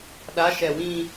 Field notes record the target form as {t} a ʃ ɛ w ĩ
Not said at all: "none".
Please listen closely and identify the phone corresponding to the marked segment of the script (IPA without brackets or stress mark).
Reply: ɗ